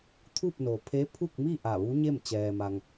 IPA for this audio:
t̪ʰ u˥˨ p̚ n o˩ pʰ e˧˥ pʰ u˥˨ k̚ m i˥˨ ʔ a˧˩ ʋ u˧˥ ɲ e˥˨ m t͡ɕ ɛː˩ m a˩ ŋ

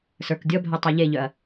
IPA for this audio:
s ə˞ k dʲ ɔ bʱ œ tˤ ə˞ ʎ e ʎ œ ɐ̯

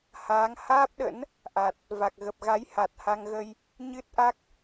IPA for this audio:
h aː˨˦ ŋ h aː˦˥ p̚ ɗ ə̰˧˥ n | ʔ a˨˩ t̚ | v a˨˩ k̚ ɣ ə˨˩ p̚ ɣ a˨˦ j h a˨˩ t̚ h a˧ ŋ ɣ ə˧ j | ɲ ɨ˦˥ t̚ ʔ a˦˥ k̚

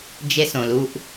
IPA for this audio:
d͡ʒ e˧ s õ˨ l u˧ ʔ

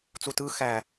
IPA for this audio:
t͡s u t ɯ x æ

